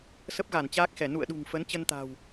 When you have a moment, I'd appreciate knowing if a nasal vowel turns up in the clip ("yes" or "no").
no